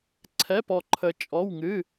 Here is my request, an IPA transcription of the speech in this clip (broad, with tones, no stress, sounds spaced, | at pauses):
ǀʰ ɛ˧˥˧ p ɔ˧ ǃʰ ə˧ t͡ʃʼ ɔ˧˥˧ w ŋ ɨ˧˥˧